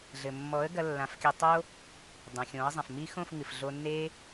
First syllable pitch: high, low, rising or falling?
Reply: low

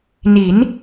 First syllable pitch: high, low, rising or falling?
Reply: rising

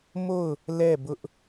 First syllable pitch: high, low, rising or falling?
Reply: falling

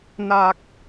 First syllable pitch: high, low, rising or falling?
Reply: low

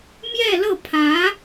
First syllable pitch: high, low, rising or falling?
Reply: falling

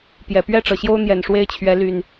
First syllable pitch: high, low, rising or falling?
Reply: low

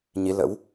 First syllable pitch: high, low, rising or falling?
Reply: rising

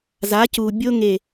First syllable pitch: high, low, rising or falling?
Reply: rising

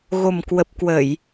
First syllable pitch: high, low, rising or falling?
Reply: low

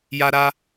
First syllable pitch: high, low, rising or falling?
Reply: high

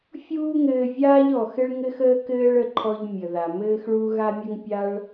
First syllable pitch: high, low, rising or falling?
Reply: high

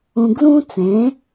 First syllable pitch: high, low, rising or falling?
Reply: high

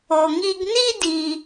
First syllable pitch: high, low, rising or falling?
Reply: low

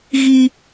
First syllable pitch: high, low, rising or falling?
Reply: high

